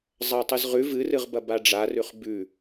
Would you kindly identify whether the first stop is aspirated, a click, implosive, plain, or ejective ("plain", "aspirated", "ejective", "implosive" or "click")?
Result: plain